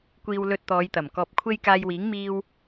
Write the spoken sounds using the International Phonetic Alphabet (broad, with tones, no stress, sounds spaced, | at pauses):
kʷ iː˧ w l ɵ˧ t̚ t̪ ɔː˨˧ j t̪ ɐ˨˩ m k ɔː˧ p̚ kʷʰ e˥ j k aː˧ j w iː˨˥ ŋ m iː˧ w